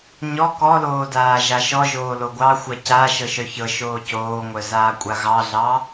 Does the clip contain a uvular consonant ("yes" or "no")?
no